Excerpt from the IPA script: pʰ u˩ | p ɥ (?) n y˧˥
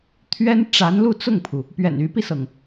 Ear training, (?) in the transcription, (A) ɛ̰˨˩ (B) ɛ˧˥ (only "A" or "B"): A